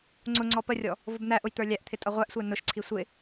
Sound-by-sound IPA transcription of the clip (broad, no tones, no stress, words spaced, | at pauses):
ŋ͡ǀʊ ŋ͡ǀɔpərʲɔ | vʊbn̪æʔʊj t̪ə˞lʲæʔt̪ʰɪ tʼʌʁʷæʔsʷæ nʊʃǀʰi sʷɪ